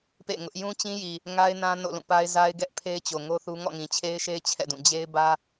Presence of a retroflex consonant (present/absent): absent